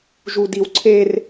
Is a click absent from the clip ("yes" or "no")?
no